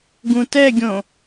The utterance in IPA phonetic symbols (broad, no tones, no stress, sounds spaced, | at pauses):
ɡ ũ t ɛ ɡʲ õ